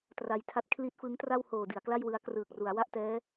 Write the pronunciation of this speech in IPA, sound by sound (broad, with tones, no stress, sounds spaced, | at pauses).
t r a˧ j tʰ a˦˥ t̚ kʰ l i˦˥ t̚ f ɯ˦˥ ŋ t r a˥˩ w h oː˨˩ d i˩˦ a̯ k l a˥˩ j w ɯ˧ a̯ k r ɯː˨˩ k̚ r u˩˦ a̯ w a˥˩ ʔ t ɛː˦˥